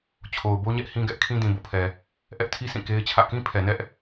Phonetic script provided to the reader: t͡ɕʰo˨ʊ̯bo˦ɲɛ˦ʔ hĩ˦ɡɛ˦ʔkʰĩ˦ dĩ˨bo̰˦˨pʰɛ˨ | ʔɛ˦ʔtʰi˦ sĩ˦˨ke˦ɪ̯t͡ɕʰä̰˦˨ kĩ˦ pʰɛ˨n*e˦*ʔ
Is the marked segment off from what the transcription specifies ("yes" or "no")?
yes